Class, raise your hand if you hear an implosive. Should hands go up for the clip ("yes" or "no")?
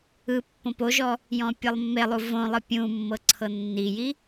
no